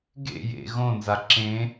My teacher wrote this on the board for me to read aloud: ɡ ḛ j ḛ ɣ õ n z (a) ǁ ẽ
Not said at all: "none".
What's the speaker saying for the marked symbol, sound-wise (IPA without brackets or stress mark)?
a